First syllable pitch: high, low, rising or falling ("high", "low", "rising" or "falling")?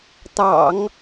low